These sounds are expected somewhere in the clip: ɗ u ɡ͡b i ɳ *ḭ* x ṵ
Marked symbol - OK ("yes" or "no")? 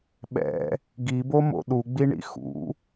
yes